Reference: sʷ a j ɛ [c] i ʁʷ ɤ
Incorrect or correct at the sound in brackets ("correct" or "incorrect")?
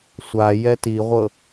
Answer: incorrect